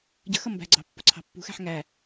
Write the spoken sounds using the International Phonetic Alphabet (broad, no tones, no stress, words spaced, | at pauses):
ɟə̤xʌ mbæ̤ɡ͡ǀɑ̤ pːʊǀʰɑ̤pːṳxæ̤ħ ŋæ